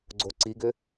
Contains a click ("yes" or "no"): yes